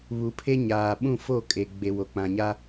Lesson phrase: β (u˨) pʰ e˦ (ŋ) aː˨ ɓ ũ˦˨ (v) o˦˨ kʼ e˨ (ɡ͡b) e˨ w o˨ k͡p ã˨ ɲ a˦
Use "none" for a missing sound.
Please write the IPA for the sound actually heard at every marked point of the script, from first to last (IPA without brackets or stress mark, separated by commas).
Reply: u˨, ɲ, f, ɡ͡b